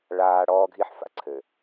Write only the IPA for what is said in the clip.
ɭ aː˨ ɽ ɔː˦ ɡʱ i˦ ħ f a̰˦ ǀʰ ɘ˨

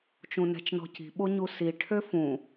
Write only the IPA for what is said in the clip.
t͡ʃ ũ n ɛ̤ t͡ʃ n ɔ̤ c i̤ ɓ o ɲ u s i ʈʰ ø f ũ

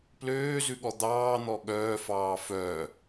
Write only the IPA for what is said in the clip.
p l øː z ʉ ɠ ɔ d̪ ɑː n̪ ɔ ɠ œː f ɑː f œ

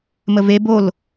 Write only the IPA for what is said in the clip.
m ə v e b o l

